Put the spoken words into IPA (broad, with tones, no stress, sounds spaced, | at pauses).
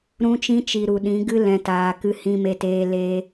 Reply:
ɾ ũ˧ t͡ʃ ĩ˧ t͡ʃ i˨ ɾ u˨ ɗ ĩ˨˦ ɡ ɨ˦ l ɛ̃˨ t aː˨ k ɨ˧ h ĩ˧ m e˧ t eː˧ l e˧